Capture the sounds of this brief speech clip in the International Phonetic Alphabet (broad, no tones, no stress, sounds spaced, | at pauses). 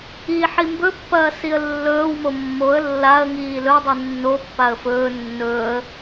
i ħ i m b ɵ pː ɐː s i ə̯ lː ɵː w m o mː o ə̯ lː a ə̯ ŋ iː l ɵ dˤ i nː o pː a ə̯ f ɵː nː ɵː ə̯